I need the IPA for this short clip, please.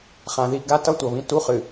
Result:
χ ã˨ ð i˦˨ ɡ a˦ t ʌ˦ tʷ ʌ˨ β ĩ˦ t u˦ χ ɨ˨

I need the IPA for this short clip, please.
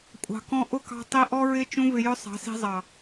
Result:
kʷʼ ɑ̤˨ k ɔ̃˧ ʔ ʊ˦˨ k ɑ̤˧ tˤ i˧ ʔ ɔ˦ ɹ ɪ˦ t͡ʃ ũ˦ v ɪ˧ j ʊ˦ sˤ ɑ̤˨˦ s i̤˧ zˤ ɑ˨

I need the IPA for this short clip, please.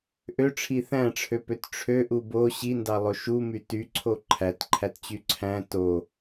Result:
ʔ ø ʈ͡ʂʰ i θ æ̃ ʈ͡ʂʰ ø p ø t ʈ͡ʂʰ ø ʔ u b o ɕ i n d ɑ lˠ o ʃ u m y t y ǀʰ o ǃʰ æ t ǃʰ æ t t͡ɕ y ǀʰ æ̃ t o

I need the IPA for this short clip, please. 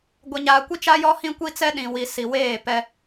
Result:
ɡʷ ɛ˨ ɲ aː˨ kʷ i˦ t͡ʃ a˦ j ɔ˦ h ĩ˦ kʷ i˦ t͡s ɛ˦ ɗ ĩ˨ w i˨ s i˨ w eː˦˨ p ɛ˦

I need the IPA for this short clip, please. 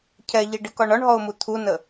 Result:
cʰ ɛ ʎ i ɖ ɪ k ɒ ɳ ɒ ɳ ɦ ɔ ʊ̯ m u t̪ʰ u n ə

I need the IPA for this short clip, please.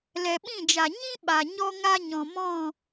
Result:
l ɛ˨ ɓ ĩ˦˨ d͡ʒ a˨ ɲ ĩ˦ ɓ a˨ ɲ ɔ˦ ŋ a˦ ɲ ɔ̃˨ m ɔ̃˦˨

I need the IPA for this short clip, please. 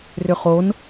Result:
r ʏ χ o n

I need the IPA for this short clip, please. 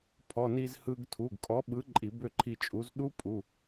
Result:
pʰ ɔ˩˧˩ n i˧ z h ɯ˧ ɡ tʰ u˩˧˩ ɡ kʼ ɔ˨˥ ɓ ɯ˨˥ ǃʼ i˧˩˧ b ø˥˨ ǃʰ i˧ t͡ʃʼ u˨˥ z ɗ u˦˥ pʼ u˩˧˩

